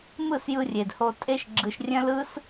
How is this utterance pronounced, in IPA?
m ɯ˦˨ s j ɯ˧ rʲ e˨ d h o˧ tʼ e˦ ʃ ɡ͡ǁ ɯ˧ ʃ rʲ œ̃˦ l ɯ˦ s

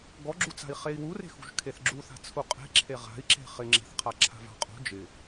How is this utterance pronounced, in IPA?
ɡ ɔ ɡ͡ǁ u t͡s a̤ i̯ χ e i̯ w u r e̤ x ṳ ʒ kʰ e θ ɡ͡ǁ u θ a̤ t͡sʰ u qʼ e̤ ǁʰ e ʁ a̤ i̯ ǁ e̤ χ ɪ ŋ͡ǁ e̤ θ qʰ a ǁʰ a̤ v a̤ qʼ ṳ d͡ʒ ɪ

